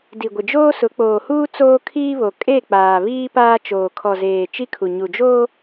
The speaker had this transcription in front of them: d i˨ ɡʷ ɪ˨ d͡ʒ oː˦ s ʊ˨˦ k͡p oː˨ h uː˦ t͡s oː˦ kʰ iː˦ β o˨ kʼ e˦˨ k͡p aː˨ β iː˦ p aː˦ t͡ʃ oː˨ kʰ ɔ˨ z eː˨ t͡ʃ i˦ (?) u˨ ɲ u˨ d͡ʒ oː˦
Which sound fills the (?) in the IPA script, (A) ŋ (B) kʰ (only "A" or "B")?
B